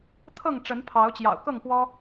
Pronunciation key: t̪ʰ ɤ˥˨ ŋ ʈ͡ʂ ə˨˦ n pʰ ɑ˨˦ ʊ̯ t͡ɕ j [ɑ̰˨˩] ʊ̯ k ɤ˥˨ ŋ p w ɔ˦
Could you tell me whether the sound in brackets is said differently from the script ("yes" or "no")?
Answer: no